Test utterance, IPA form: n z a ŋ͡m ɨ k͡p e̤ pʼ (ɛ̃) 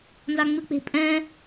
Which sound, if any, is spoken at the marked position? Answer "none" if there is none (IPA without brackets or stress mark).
ɛ̃